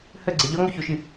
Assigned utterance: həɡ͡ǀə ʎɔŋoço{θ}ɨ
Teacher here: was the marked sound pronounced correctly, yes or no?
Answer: no